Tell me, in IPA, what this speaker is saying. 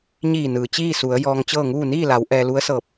ɲ iː˧˩ n ɯː˩ t͡ɕ iː˥˨ s u˩˧ ə̯ j ɔː˧ ŋ t͡ɕ ɤː˥˨ ŋ uː˥˨ n iː˥˨ l a˩˧ w ʔ ɛː˧ l u˧˥ ə̯ s ɤː˧˩ p̚

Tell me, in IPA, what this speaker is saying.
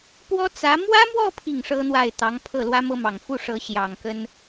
p w ɔ˥ t͡s ä˧˥ m w ä˥ m w ɔ˥˧ pʰ i˥˩ ŋ ʂ ɤ˥ n̪ w a˥˩ ɪ̯ t̪ ɑ˧˥ ŋ pʰ ɤ˥˩ l w ä˥ m ɤ˥ m ɑ˨˩ ŋ f u˥˩ ʂ ɤ˧˥ ɕ j ɑ˨˩ ŋ k ə˥ n

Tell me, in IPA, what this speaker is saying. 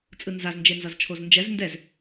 t͡sʼ ɯ n z a z n d͡ʒ e n z ʌ z t͡ʃʰ o z n d͡ʒ ɛ z n d ɛ z

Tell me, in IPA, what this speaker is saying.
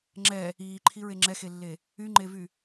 ŋ͡ǁ ɛ | iː ǃʰ i ɹ e ŋ͡ǁ ɛ x e lː e | y ŋ͡ǃ e v y

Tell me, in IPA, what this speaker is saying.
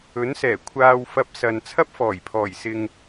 ɵ˨˥ n s ɛː˨˩ kʷʰ aː˧ w f ɐ˧ p̚ s ɐ˨ n t͡sʰ ɐ˥ p̚ f ɔː˨˩ j pʰ ɔː˨˩ j s ɪ˨ ŋ

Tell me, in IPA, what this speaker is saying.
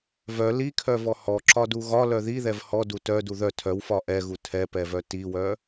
v œ l i kʰ œ v ɔ h ɔ ǁ ɒ d u ɣ ɒ l œ ð i ð ɛ v h ɔ d u t œ d u ð œ tʰ œ w f ɒ ʔ ɛ ɣ u tʰ ɛ p ɛ v œ t i w œ

